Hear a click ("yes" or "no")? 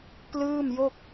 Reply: no